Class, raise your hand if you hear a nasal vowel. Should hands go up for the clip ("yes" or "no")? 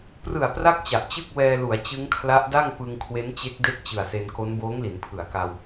no